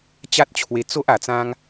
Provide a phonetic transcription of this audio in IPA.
t͡ɕ a˦ t̚ t͡ɕʰ w e˧ t͡s o˦ ʔ a˧ t͡s ã˦ ŋ

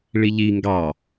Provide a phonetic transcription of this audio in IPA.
ɭ i ʎ i ŋ ɡ ɑ

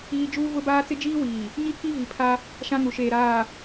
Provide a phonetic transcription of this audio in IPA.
iː˦ d͡ʒ uː˦ v ʊ˦ b aː˦ t͡s ɪ˦ d͡ʒ iː˦ w iː˨ | ɲ i˦ k i˦ v i˨ pʰ a˦ | ʃ ã˦ ŋ u˨ ʃ eː˨ ɾ aː˨

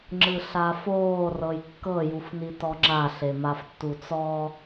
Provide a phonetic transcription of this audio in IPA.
ŋ͡ǁ ɯ ɬ a f oː r ɤ j kː ɤ j u f n i t ɔ ŋ͡ǁ a ɬ e m a f tː u t͡s ɔ

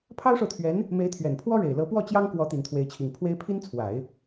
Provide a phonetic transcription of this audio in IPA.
pʰ ɑ˥ ʊ̯ ʂ o˨ ʊ̯ t̪ʰ ɥ ɛ˧˥ n | m e˧˥ ɪ̯ t̪ʰ ɥ ɛ˨˩ n pʰ w ɔ˥ ɻ e˨˩ ɪ̯ l ɤ˧˥ p w ɔ˥˩ t͡ɕ j ɑ˥ ŋ k w ɔ˧˥ t̪ i˨˩ n t̪ʰ w e˧˥ ɪ̯ t͡ɕʰ i˨˩ ŋ pʰ w e˥ ɪ̯ pʰ i˥ n t͡sʰ w a˨˩˦ ɪ̯

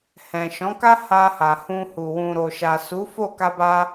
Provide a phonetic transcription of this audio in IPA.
h ɛ̃˨ ʃ ɔ̃˨˦ k a˦ h a˧ h a˨ h ũ˧ h u˨ w ũ˨ ɾ o˨ ʃ a˨ s u˨˦ f o˦˨ k a˧ b a˧

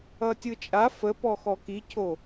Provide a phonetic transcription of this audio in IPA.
ʌ tʲ ɯ t͡ʃʼ a f ə p ɔ x ɔ k i cʰ o

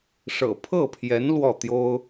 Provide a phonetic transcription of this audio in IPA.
ʂ ɤ̰˨˩ pʰ ɤ˥˩ pʰ j ɛ˧˥ n l w ɔ˥˩ t̪ j o˥ ʊ̯

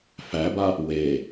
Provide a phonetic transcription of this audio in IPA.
f æ b a | w e

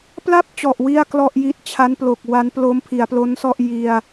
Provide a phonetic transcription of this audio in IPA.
p l a˥˩ p̚ t͡ɕ ɔ˨˩ ʔ w i˥˩ a̯ k l ɔ˥˩ ʔ j i˦˥ t̚ t͡ɕʰ a˦˥ n p l o˨˩ k̚ w a˦˥ n p l o˦˥ m pʰ i˩˦ a̯ p l o˦˥ n s ɔ˥˩ ʔ j i˧ a̯

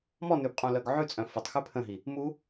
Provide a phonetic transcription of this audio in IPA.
m ɔ n ʉ b qʼ ũ l œ ɡ ʕ ʉ t͡sʼ œ̃ f ʊ tˤ x ʉ pʰ ə̃ ɦ i | m u

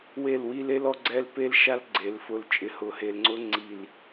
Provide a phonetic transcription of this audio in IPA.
w e˦˨ l w i˦ l e˦ l ɔ˦ ɡ͡ǀ ɛ˦ l p e˦ l ʃ a˦ l ɡ͡ǀ e˨˦ l f ʊ˦ l t͡ʃʼ ɪ˨ h ʊ˨ h e˨ l ŋ͡ǀ ʊ˦ ŋ͡ǀ i˦˨ l

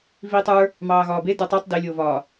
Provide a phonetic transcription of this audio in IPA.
v iː tˤ ə˞ | m ɑː ɣ ɒː b e d ə˞ tˤ ə˞ tˤ d e lʲ oː v ɒː

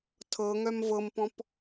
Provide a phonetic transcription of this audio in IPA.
tʰ ɤ ŋ œ m v ɤ m p ɔ̃ p

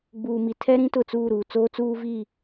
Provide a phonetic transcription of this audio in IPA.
ɡ͡b uː˨ m i˨ tʰ ɛ˦ ɾ ĩ˦ t ʊ˨ t͡s uː˦˨ ɾ uː˨ t͡s oː˦ t͡s uː˦ v i˦˨

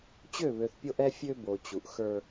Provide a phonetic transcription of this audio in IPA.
t͡ɕ ø˦˨ β ø˨ θ pʲ o˦ ʔ ɛ˦ fʲ ø˦ b o˨ t͡ɕ u˨ ʔ x ə˞˦

